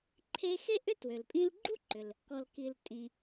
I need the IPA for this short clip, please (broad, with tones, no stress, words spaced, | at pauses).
ǃʰe˧xe˥ʔʏ˥ twø˩lpʼĩ˧lɡ͡ǃu˥ ǃʏ˩l | kɔ˩lki˩l tʼĩ˩